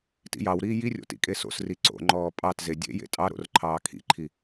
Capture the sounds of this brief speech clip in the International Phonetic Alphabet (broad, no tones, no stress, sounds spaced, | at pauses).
t ḭ j ɑ w ɾ iː j i rʲ o̰ t ḭ kʼ e s o̰ s r i ǀ o̰ ŋ͡ǃ ɔː pʼ ɑ t z e dʲ ḛ j ḛ tʼ ɑ ɾ o̰ r ǃʰ ɑː kʰ ḭ ǃʰ i